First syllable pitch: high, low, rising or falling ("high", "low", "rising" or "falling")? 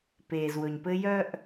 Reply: low